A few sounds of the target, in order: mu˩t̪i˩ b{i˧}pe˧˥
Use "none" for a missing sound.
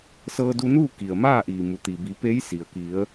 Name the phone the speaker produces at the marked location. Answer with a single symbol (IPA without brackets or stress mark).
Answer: i˩˧